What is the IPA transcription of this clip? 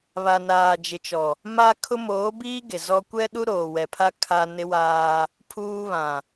βa˨naː˨ d͡ʒɪ˨t͡ʃɔ˨ | ma˦kʰʊ˦ moː˨˦biː˦ ɡe˨zɔ˦ kʷɛ˦ɗu˦ ɾoː˨wɛ˨pʰa˦ kʰa˦ nɪ˦waː˦ | pʰuː˦βã˨

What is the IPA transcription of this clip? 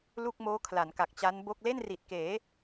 lu˥˩k̚ moː˦˥kʰla˩˦nka˨˩k̚ t͡ɕa˦˥nbo˥˩k̚ le˥˩nri˨˩t̚keː˩˦

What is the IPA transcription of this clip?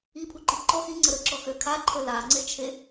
ipʰuǃi ǃɔ xiŋ͡ǀə ɾəǁɔxø kʰaǃʰə laŋ͡ǀet͡ʃʰe

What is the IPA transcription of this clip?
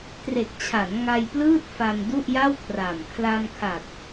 tre˨˩k̚t͡ɕʰa˩˦n ŋa˧jplɯː˥˩t̚fa˧m du˥˩ʔja˥˩wkʰra˨˩m kʰla˧mkʰa˨˩t̚

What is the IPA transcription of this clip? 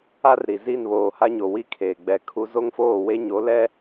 a˦rɾi˨ zi˦˨nβoː˨ha˦ɲo˨ wi˦kʰeː˨ɡ͡bɛ˨ kʰu˦ zo˦ŋfoː˦˨we˦ ɲo˨˦ lɛ˦

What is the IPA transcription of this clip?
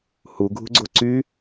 huɡʱṳɡ͡ǀo ǀy

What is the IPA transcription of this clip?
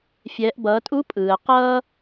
fʲɛː˩˧ʔbʌː˩˧tʼu˧˥ pʼɯː˩ə̯qʌː˥

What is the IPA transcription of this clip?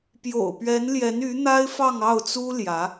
pjo̰˨˩ʊ̯pɥɛ˧˥nljɛ˧˥ny˧˥ n̪a˥ɪ̯fɑ˥˧ŋɑ˥˩ʊ̯t͡su˥ ljä˧˥

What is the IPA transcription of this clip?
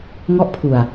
ŋɔ˦˥ʔpʰu˨˩a̯

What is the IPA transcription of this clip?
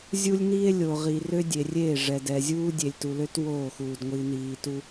zʲu˦lʲniː˦e̯lʲo˨ ʁi˨rø˦ dʲe˨rʲe˦˨ʐɛ˨ dɛ˨zʲuː˦ dʲe˨lʲtu˨lø˦t woː˦˨xuː˨d ŋʷi˨niː˨ tu˦

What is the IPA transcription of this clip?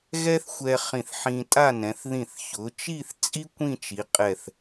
ɣɛ˥θxʷɛ˧ χĩ˧˩θħĩ˧tʼa˥˧nɛ̃˩˧θ ðĩ˧˩θçʊ˩˧t͡ʃi˥˧θ t͡sʼi˥ kʷĩ˥˧t͡ʃi˩˧qʼɛ˧˩θ

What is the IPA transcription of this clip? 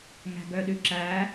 ŋæ̤ɡœɗʉǁæ

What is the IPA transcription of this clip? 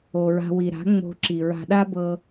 o˨ɹa̤˧wi˨ ɾa̤˨˦ ŋ͡mo̤˧ǁi˨ɹa̤˧ ɗa˦bɤ˧

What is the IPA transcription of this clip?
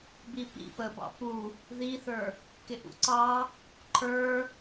bipḭ pəbɑ̰ pu | ðiθə˞ | kɪʔṵǀɑ | ǃʰə˞

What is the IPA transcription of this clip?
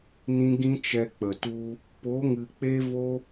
nĩ˧ ɡĩ˦t͡ʃɛ˧k͡pə˨ tu˧ | po˨˦ŋɨ˨ k͡pe˦vo˦

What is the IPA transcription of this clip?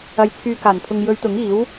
ɐ˨˧j t͡sʰyː˨kaː˨˩npʰʊ˨ŋjɵ˨˧ɥ t̪ʊ˨˥ŋiː˨˥w

